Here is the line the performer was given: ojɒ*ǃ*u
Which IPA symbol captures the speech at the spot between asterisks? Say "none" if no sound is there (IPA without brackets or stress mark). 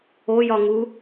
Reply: ŋ